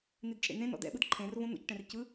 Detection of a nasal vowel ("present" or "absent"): present